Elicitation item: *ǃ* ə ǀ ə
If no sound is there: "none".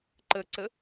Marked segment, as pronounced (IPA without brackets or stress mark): ǃ